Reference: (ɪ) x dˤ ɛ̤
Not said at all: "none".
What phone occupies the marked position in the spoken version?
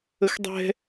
ə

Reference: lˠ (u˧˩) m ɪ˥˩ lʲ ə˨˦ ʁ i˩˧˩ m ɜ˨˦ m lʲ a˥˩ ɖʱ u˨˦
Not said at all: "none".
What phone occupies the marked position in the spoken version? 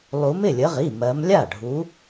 u˨˦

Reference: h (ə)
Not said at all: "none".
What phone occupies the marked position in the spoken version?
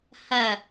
ɐ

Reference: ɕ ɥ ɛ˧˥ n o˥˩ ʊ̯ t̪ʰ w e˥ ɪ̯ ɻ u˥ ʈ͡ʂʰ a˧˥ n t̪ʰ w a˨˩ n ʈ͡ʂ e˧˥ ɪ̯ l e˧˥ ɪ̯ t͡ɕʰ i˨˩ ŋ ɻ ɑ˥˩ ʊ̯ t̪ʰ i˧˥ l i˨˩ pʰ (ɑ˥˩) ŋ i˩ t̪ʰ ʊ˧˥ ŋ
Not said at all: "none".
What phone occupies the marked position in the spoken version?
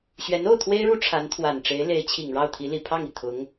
ɑ˥˩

